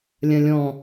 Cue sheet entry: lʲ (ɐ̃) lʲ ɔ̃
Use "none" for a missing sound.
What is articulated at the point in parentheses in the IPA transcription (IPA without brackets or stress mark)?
ɐ̃